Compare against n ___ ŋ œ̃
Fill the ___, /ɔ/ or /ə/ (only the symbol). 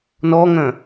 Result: ɔ